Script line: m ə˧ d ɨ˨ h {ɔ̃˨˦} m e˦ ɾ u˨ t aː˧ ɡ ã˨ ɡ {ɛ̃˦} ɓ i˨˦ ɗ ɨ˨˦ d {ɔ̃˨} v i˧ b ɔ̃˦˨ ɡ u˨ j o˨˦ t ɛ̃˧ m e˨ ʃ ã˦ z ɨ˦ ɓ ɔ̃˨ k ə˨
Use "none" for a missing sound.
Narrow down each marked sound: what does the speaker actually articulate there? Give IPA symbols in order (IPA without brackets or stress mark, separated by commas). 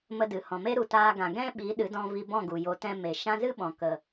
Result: ɔ̃˨, ɛ̃˦, ɔ̃˧